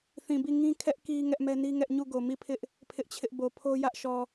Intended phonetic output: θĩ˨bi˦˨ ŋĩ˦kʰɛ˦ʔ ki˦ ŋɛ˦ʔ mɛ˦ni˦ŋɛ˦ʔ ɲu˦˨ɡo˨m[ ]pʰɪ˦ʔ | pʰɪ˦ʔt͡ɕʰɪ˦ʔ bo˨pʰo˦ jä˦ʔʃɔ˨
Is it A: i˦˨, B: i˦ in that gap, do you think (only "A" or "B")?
A